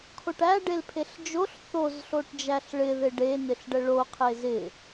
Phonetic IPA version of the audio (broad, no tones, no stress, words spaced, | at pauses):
kʰoʈæ ɖelpʰeɬd͡ʒoɬ θoz ɬoʈd͡ʒæɬɭɪ ðɪɖe nɪɬɖəɭo qʰezɪ